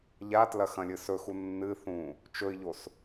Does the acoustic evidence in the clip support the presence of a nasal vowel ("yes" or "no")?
yes